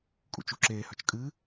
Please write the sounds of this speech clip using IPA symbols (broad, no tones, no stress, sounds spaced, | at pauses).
kʼ ṵ t͡ʃ u ǁ eː h œ t͡ʃ kʼ ɨ